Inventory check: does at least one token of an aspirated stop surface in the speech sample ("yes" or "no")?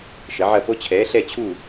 yes